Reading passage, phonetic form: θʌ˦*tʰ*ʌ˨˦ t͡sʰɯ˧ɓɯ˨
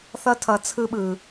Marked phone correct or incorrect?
correct